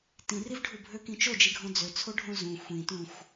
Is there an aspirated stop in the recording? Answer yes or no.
yes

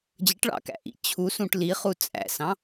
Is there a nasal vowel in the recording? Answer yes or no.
yes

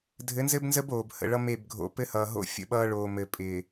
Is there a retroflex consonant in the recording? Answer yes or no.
yes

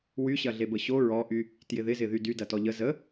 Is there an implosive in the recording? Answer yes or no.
no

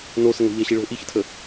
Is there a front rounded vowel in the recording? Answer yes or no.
no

